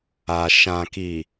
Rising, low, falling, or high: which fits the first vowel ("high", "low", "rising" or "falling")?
low